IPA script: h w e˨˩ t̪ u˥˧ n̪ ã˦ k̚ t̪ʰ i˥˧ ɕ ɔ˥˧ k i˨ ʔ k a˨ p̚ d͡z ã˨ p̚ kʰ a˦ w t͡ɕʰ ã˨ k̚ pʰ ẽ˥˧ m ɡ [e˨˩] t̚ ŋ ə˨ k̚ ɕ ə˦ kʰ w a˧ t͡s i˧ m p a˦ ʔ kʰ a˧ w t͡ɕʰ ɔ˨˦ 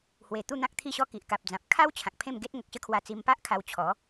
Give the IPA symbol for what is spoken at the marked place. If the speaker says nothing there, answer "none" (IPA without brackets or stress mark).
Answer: e˦